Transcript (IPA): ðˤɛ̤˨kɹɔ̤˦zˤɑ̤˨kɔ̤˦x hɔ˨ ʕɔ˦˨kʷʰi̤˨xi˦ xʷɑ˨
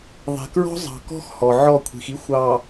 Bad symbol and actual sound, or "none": none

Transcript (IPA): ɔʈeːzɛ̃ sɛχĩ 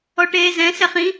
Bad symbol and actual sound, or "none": none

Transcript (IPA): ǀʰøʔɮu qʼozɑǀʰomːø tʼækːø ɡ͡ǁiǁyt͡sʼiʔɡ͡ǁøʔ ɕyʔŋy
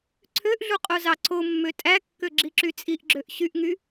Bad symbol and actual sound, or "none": none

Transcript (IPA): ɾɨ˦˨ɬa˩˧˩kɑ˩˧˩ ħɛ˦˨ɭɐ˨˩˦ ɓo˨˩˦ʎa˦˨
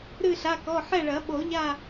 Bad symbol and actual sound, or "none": ɑ˩˧˩ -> ɔ˩˧˩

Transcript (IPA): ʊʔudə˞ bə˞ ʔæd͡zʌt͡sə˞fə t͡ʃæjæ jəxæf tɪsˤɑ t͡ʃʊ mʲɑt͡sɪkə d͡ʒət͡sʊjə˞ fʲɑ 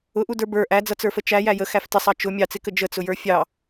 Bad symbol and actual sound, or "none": none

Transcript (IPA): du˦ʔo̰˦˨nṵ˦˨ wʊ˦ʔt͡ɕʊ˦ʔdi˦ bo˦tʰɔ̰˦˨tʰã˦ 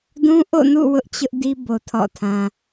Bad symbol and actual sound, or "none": u˦ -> ũ˦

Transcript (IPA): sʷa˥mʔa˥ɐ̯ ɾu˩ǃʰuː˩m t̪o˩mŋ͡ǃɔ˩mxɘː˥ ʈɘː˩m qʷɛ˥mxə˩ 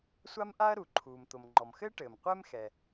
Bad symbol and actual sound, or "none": ə˩ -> ɛ˩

